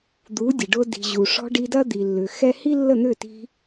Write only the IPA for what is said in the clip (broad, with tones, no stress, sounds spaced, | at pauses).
d̪ u˨˦ dʲ ə˨ ɖ ʊ˧ d i̤˨ ʑ u˨ ʂ ɔ̤˧ ɖ i˧ d ɐ˦ d̪ i˨ lː ʏ˨ x ɛ˦ h i˦ lː ə˦˨ n̪ ʏ˦˨ t i̤˧